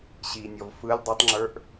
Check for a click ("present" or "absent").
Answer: present